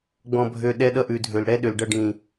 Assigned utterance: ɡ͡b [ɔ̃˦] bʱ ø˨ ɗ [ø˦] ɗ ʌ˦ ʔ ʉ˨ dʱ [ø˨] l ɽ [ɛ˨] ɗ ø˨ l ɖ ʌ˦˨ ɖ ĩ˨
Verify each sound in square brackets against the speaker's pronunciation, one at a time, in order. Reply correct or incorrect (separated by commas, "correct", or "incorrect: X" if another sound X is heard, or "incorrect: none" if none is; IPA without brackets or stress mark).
incorrect: ɔ̃˨, incorrect: ɛ˦, correct, incorrect: ɛ˦